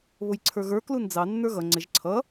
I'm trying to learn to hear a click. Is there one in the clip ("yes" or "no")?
yes